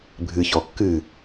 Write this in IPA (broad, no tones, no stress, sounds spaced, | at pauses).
bʱ ɨ ç ɔ kː ɨ